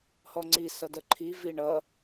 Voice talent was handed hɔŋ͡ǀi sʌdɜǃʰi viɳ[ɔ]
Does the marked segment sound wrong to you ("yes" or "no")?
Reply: yes